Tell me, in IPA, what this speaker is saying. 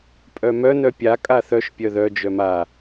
pʼ œ m œ n œ pʲ a kʼ a θ œ ʃ pʲ œ ð œ d͡ʒ œ m a

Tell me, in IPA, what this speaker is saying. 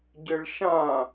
ɟ ɘ ɭ ʃ ã

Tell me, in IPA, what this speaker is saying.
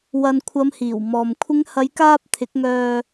w ɐ˨ n kʷʰ ɐ˨˧ m h iː˨˩ w m ɔː˨ m kʷʰ ɪ˨˧ ŋ h ɐ˨˧ j k aː˧ p̚ t̪ʰ ɪ˨˥ k̚ ŋ œː˧

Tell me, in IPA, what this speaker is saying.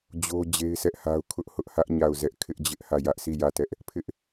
d͡ʑ o˦ d͡ʑ e˦ ɪ̯ sʰ ɛ˦ ʔ h a˦ ʊ̯ kʰ ʊ˦ ʔ h ʊ˦ ʔ h ä˦ ʔ ɲ a˦˨ ʊ̯ z ɛ˦ ʔ kʰ ɪ˦ ʔ d͡ʑ ɪ˦ ʔ h ä˦˨ j ä˦ ʔ sʰ i˦˨ j ä˦˨ t ɛ˦ ʔ | pʰ ɪ˦ ʔ

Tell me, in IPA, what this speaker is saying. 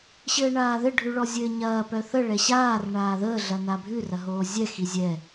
ɕ ɘː ɳ aː ð ɘ ɖʱ ʉ ɭ ɔ zʲ ɘː ɲ ɐː p œ θ ə ɭ ɛ ɕ aː r ɳ aː ð əː ɮ ɐ n a bʱ ʉ r ɐ ɦ oː zʲ ɛ x i zʲ ɛ

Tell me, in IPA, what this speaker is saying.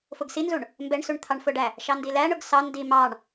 f ʊ ɡ s i n z u ɳ | m b ɛ ɳ s u ɳ t̪ʰ ɑ ɳ f ʊ ɖ æ | ʃ ɑ n d i l æ ɳ ʊ ɡ s ɑ n d i m ɑ ɳ

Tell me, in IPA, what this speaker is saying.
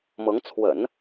m ɤ˧˥ ŋ t͡sʰ w ə̰˨˩˦ n

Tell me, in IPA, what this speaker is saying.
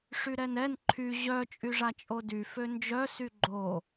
ʂ y ɾ ɛ n ɛ n ǃʰ y ʑ œ t͡ʃʼ y ʐ a t͡ʃʼ o d y f ø n d͡ʒ œ s y ɡ͡ǃ o

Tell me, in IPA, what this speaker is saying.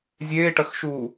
zʲ eː ʈ ɐ x ʃ uː

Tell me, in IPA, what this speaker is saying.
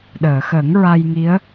ɗ əː˨˩˨ x ə˨˩˦ ŋ ɹ a˧ j ŋ i˧˥ ə̯

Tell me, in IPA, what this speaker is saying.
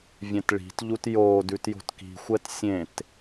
vʲ ɛ̃ t ɭ i̤ t ʎ u t j oː d ʉ t j o̤ t k i̤ xʷ ɛ t sʲ ẽ t

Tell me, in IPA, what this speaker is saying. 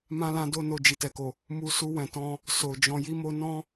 m ã˦ l ã˦ d o˦ n o˧ d͡ʒ i˨ t ɛ˨ k o˨ | m u˧ s u˧ w ɛ̃˨ t ɔ̃˧ | s o˨ d͡ʒ ɔ̃˧ j i˦ m o˦ n ɔ̃˦

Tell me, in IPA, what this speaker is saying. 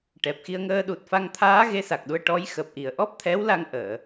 ʈ ɛ˨˩ p̚ x i˧ ə̯ ŋ əː˧ ɗ u˨˩ t̚ f a˧ ŋ t̪ʰ aː˧˥ ɣ e˧˥ s a˨˩ k̚ ɗ u˧ ə̯ ʈ ɔ˧˥ j x əː˨˩ p̚ ʔ i˨˩ ə̯ ʔ ɔ˦˥ p̚ t̪ʰ ɛ˧˥ w l a˧ ŋ ʔ əː˨˩˨

